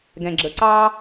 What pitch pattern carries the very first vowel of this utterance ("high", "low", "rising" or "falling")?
low